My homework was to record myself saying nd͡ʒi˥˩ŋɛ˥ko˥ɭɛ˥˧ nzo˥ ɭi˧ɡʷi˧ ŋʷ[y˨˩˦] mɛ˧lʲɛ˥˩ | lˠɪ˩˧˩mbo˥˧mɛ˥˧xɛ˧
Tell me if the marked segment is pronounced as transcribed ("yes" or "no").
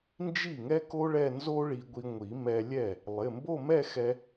no